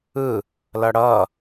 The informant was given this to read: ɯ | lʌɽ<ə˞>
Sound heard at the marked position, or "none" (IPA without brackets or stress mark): ʌ